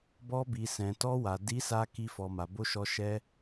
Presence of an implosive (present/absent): absent